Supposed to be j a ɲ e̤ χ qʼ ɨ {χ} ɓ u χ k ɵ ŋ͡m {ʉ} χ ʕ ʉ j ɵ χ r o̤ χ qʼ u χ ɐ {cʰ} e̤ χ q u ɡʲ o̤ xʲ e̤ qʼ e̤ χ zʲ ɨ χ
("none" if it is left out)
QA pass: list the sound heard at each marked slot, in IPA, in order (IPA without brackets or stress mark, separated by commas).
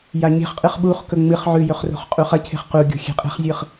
χ, ɨ, cʰ